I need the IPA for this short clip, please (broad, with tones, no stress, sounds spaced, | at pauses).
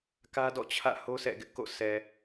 k ä˦ d ɔ̰˦˨ t͡ɕʰ ä̰˦˨ h o˦ sʰ ɛ̰˦˨ ɡ ɪ˦ ʔ k o̰˦˨ sʰ ɛ˨